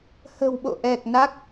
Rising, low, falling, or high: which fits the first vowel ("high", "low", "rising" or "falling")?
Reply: low